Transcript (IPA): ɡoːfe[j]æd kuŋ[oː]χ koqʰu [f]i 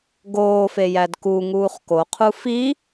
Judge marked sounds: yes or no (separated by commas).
yes, no, yes